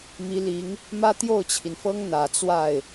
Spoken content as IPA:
mi˧˥li˧˥ŋ | mä˥t̪jo˥˩ʊ̯t͡ɕʰi˩nfɤ˥ŋ n̪ä˨˩t͡swa˥˩ɪ̯

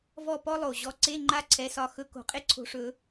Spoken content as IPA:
vɔ˥˧pɔ˥lˠo˨˩ ʑɔ˨˦ǀe˧˥˧ ŋ͡ǃa˥˧ǀʰɛ˨˦sɒ˨˦ xɵ˨˦ko̤˨˩˦ qʼe˥ǀʰo̤˨˦ʂɵ˨˩˦

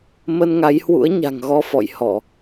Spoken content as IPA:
mə˧nŋa˨˦jhwṵ˧˥ə̯ ɲa̤˨˩ŋɣɔ˧ fɔ̰˧˨jhɔ˧˩˨

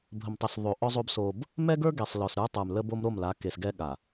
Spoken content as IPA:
bʱə˨mtˤə˨s ðˤo˨ʔɔ˦zˤo˦b so˦b | mɛ˦ɡə˞˦ ɡe˨sˤlɔ˨sɾə˞˦tˤə˞˨m lə˦bo˦m ɾo˦˨mla˨˦ke˨sɡɛ˦ ɠa˨

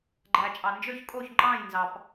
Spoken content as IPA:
ɡ͡ǃæ˨t͡ʃʼɑ˨ nd͡ʒø˥˨çkʼo˥˨çŋ͡ǃɑ̃ː˥˨jnzɑ˨p

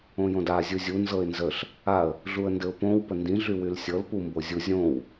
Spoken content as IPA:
õjõda zʲuzʲu nzɤɪ̯nzəɬ | aə̯ | ɮuə̯ndɘʊ̯põw pəndĩ ɮywylsʲɤl pumbozʲu zʲõw

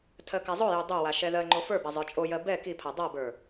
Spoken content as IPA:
tʰɜkazˤojo dˤowa ʃɛðɜŋ͡ǃo fə˞ba zˤə˞t͡ʃʼojɜ bɛ kipʰa dˤabə˞

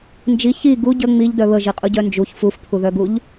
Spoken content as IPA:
nd͡ʒi çi ɡu ɟə ŋ͡miʎdœ βəʒiqʼuɟœ nd͡ʒuç fufpʰuðœɡuʎ

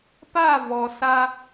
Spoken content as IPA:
pa˦˨ vɔ˨sa˧

